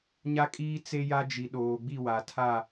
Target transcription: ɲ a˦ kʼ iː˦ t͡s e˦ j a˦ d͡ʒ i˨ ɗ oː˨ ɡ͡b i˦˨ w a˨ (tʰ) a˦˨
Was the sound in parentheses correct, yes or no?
yes